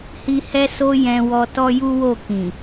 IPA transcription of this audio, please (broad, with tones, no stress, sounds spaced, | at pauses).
h i˧ h ɛ˦ s o˦ j ɛ̃˧ w ɔ˧ t ɔ˦ j u˦ w o˦˨ k ĩ˨